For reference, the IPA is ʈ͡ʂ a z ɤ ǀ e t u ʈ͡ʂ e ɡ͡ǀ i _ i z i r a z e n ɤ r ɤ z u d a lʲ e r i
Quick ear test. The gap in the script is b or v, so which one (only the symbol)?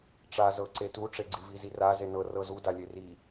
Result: v